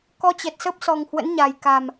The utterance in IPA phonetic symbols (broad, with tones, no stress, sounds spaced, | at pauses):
k ɔ˧ t͡ɕ ɛ˨˩ t̚ s ə˦˥ p̚ s ɔ˨˩ ŋ h w ə̰˧˥ n ɲ a˨˩ j k a˨˩ m